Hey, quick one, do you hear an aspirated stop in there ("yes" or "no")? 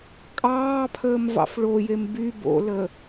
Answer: yes